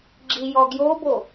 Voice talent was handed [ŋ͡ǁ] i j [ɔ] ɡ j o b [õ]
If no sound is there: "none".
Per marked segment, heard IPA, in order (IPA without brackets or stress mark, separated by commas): ɡ͡ǁ, ɔ, o